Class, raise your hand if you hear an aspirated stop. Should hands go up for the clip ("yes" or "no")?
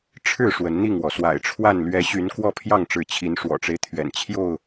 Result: yes